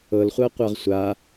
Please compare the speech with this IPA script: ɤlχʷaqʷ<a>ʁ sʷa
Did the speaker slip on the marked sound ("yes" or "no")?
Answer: no